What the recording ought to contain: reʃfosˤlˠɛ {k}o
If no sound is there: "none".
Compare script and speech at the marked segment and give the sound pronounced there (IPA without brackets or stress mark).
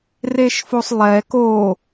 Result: k